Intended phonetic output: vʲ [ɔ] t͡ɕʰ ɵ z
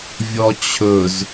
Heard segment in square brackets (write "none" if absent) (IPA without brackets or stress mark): ɔ